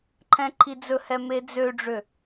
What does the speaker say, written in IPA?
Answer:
ǃʰ ɛ̃ ǃʰ i d͡z ɵ h ɛ m e d͡z ø ɖ͡ʐ ø

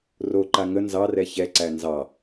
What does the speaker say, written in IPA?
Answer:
r o ǃ a ŋ ə n z ɑ r ɛ ç ɛ ǀ æ n z ɑ

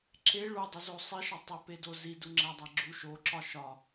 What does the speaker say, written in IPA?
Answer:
ǁ e ɭ u dˤ o z o sˤ i ʃ ɒ tˤ o p e d o z i d u ŋ͡ǁ æ dˤ æ ɡ͡ǁ u ʃ o ǁ ɒ ʃ ɒ

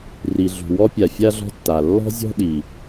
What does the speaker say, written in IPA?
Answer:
r i˩ ɮ ṳ˩ w ɔ˥ pʲ a˩ fʲ a˥ ɮ ɔ̤˥ tː a˩ lː ɔ̤˥ zʲ ɔ̤˥ ɗ i˩

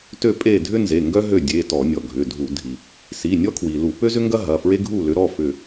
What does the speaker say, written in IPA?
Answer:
t ø˦˨ pʼ e˦˨ dʱ ʏ˥ n z e˩˧˩ ŋ ɡ œ˥ ɦ ø˦˨ dʲ e˩˧˩ t ɔ˧˩˧ nʲ ɔ˩ ɡʱ ʏ˩˧˩ dʱ u˧˩˧ dʱ i˩ | s i˩˧˩ nʲ ɔ˥ kʰ w i˩ l u˧˩˧ p ø˥ z ʏ˥ ŋ ɡ ɐ˥ ɦ ɐ˩˧˩ f ɹ e˥ ɡʱ u˦˨ l ʏ˨˦ ɾ ɔ˩˧˩ f ʏ˦˨

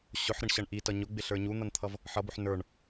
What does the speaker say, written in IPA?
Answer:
ɕ ʊ ħ ɾ ɪ ɳ ɕ ʌ ɳ ʔ i t ʌ ɲ ʊ ɡ͡b ɪ ɬ ə˞ ɲ u n̪ ʌ n t̪ʰ ʌ v | ħ ʌ b ʊ ħ n ə˞ ɳ

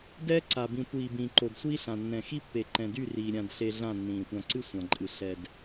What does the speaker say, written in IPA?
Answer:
d ɛː˦ ǀ a˨ b ĩ˨ tʷ iː˨ b ĩː˨ ǃ o˨ d sʷ iː˦ ɬ ã˨ nː ɛ̃˨ x i˦ pː e˨ ǃ ɛ̃˨ d y˦˨ r iː˨ ɾʲ ã˨ d ɬ e˨ ɮ ã˦˨ nː ĩː˨ tʷ ã˨ ǀ ɨ˦ sʷ ã˨ ǃʼ ɨ˨ ɬ ɛ˨ d

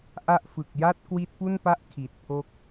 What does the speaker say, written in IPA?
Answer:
ʔ a˦˥ ʔ f ɯ˨˩ k̚ j a˥˩ t̚ k w i˦˥ t̚ p u˥˩ n p a˥˩ ʔ kʰ i˨˩ t̚ pʰ o˦˥ k̚

